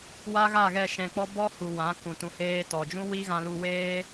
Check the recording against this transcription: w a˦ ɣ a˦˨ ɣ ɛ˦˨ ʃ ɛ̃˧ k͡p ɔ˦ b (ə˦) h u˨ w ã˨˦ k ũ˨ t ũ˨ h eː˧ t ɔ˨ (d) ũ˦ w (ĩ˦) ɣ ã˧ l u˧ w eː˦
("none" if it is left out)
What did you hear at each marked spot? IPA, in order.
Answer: ɔ˦, d͡ʒ, i˦

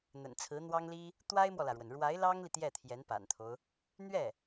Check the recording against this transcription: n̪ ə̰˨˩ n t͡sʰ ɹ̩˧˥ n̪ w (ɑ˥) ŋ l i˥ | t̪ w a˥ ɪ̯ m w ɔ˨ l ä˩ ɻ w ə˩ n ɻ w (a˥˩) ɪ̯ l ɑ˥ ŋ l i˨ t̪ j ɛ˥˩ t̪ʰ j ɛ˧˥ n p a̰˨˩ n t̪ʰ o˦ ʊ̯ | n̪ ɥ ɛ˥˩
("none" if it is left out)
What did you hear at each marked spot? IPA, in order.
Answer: ɑ˥, a˧˥

